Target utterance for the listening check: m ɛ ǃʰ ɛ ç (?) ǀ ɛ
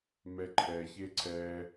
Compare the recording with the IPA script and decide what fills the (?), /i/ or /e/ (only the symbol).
e